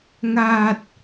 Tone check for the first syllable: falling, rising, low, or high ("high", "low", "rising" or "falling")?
low